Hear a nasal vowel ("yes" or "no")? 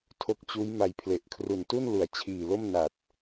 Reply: no